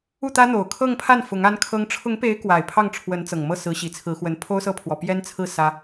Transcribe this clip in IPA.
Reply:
u˥˩ t̪ ä˥ n̪ o˨˩ ʊ̯ kʰ ɤ˥˧ ŋ pʰ a˥˩ n f ʊ˧˥ ŋ a˥ n kʰ ɤ˥ ŋ ʈ͡ʂʰ ʊ˧˥ ŋ p e˧˥ ɪ̯ k w a˨˩ ɪ̯ pʰ ɑ˥˩ ŋ ʈ͡ʂʰ w ə˧˥ n t͡s ɤ˨˩ ŋ m ɤ˥˩ s ɹ̩˧˥ ɕ i˨˩ t͡sʰ ɹ̩˧˥ x w ə˧˥ n pʰ o˥ ʊ̯ s ɤ˥˩ pʰ w ɔ˨˩ p j ɛ˥ n t͡sʰ ɹ̩˥˩ s ä˥

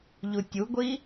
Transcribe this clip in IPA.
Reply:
ʎ u tʲ u ɡʷ i

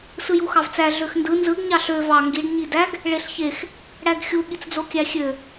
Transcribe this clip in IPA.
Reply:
s ɯ j u x ɑ v t͡s æ ɮ ø x n d ɯ n z ɯ ɡ ɲ ɑ ɬ ø v ɑ ŋ ɡ i ɖ ɲ i d æ ɡ | ɭ e ɬ ç e x | ɽ æ ɡ xʲ u ɠ i t͡s d͡z o kʲ æ xʲ ø

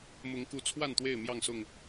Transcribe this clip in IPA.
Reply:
m ʊ˨˦ ŋ k u˨˦ t͡sʰ w a˥˨ n t̪ w e˥˨ ɪ̯ m j ɑ˥˨ ŋ s ʊ˥˨ ŋ

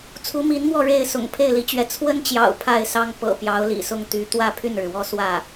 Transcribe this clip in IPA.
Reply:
t͡sʰ u˧˥ m i˧˥ n m w ɔ˥˧ ɻ e˥˩ ɪ̯ s ʊ̰˨˩ ŋ pʰ e˥˩ ɪ̯ l i˧˥ t͡ɕ ɥ ɛ˧˥ t͡sʰ w ə˥ n t͡ɕ j ɑ̰˨˩ ʊ̯ pʰ a˥˩ ɪ̯ s ɑ˥ ŋ p ɤ̰˨˩ p j ɑ˧˥ ʊ̯ l ḭ˨˩ s ʊ˥˩ ŋ t̪ y˧˥ t̪ w ä˥˧ pʰ y˥˩ n ɻ ɻ̩˩ w ɔ˥˧ s w ä˥˩

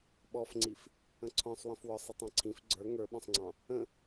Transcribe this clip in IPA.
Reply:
ɓ ɔ f ŋ͡ǀ i f | ə̃ ǀʰ ɔ̃ sˤ w ə̃ f w ɔ sˤ ə tˤ ɑ̃ ǀʰ ĩ f ɡ͡ǀ ə˞ ŋ ə˞ ɓ ɔ̃ sˤ ŋ͡ǀ ɑ̃ | ə̃

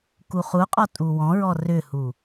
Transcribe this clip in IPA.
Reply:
k u χ u qʼ ɔ tʼ u w ɔ̃ ɹ ɔ r ʏ h u

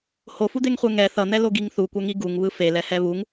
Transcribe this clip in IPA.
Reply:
h o f u d̪ e ŋ χʷ e ŋ ɛ θ ʌ n̪ ɛ l o ɡ i ŋ θ u kʷ ɛ ŋ i ɡ u ŋ β ɯ f e l ɛ h ɛ β u ŋ

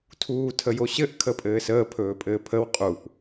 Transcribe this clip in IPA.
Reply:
tʰ uː tʰ ə j o ɕ ɘ ʔ kʰ ə pʼ ɘː s əː pʰ ɵː pʼ ɘː pʰ ə w qʼ u ʔ

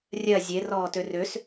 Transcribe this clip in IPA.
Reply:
rʲ ɜ zʲ e r ɔː t ø r ø s

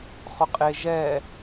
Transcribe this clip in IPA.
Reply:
χ ʊ qʼ e ʒ ɛ

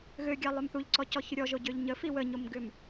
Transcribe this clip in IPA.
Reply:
ɣ ø ɡʲ ɑ lˠ ø m θ u ʎ ǀ ɔ c ɔ ç ʏ ɾʲ ɔ ʒ o ɟ ø ʎ ɲ ə f i w ə ɲ o m ɡ ʏ m

